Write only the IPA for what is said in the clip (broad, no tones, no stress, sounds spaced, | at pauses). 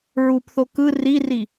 ɹ u p θ o k ɯ r i r i